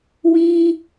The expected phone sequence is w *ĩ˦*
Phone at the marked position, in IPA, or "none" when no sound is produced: ĩ˦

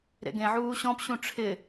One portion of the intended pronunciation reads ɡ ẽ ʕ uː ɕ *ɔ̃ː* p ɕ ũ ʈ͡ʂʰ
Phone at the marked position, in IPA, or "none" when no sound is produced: ɔ̃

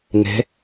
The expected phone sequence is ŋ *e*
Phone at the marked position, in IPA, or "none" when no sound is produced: e̤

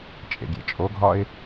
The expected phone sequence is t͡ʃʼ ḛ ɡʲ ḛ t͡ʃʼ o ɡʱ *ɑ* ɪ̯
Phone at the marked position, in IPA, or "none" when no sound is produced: ɒ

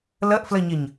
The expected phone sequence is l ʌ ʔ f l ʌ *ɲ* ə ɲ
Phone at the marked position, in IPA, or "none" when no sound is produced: ɲ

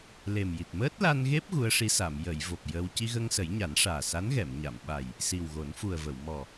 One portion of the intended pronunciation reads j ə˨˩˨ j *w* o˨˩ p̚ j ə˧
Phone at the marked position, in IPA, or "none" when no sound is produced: v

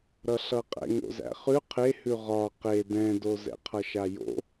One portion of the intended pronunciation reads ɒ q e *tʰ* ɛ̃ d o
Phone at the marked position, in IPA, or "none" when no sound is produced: d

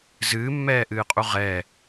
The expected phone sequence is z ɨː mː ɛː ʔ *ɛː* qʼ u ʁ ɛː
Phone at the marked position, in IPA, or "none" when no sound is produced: ɨː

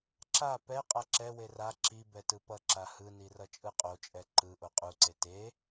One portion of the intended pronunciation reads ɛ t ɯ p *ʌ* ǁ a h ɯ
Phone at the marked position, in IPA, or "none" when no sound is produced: ʌ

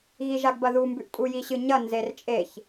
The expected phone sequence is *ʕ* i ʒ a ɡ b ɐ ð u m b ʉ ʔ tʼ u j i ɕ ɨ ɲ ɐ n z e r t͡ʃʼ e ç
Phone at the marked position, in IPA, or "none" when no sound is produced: ɣ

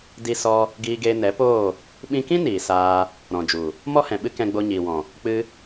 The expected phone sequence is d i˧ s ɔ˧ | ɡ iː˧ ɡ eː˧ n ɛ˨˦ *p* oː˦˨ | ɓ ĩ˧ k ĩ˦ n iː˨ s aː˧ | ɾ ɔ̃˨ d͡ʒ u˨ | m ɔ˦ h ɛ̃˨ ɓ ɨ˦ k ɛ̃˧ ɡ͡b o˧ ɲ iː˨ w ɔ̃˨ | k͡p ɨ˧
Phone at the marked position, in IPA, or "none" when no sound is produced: p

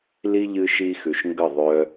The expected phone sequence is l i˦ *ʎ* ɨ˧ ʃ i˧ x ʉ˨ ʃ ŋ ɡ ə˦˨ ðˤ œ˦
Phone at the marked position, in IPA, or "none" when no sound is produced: ʎ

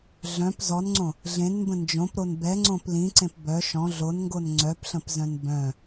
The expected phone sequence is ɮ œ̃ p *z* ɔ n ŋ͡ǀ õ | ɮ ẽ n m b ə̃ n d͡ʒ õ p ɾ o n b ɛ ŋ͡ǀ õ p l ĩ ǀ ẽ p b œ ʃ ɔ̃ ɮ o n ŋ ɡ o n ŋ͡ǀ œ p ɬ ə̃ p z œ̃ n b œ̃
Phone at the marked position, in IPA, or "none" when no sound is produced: z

